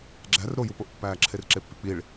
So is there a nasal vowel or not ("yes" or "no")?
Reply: no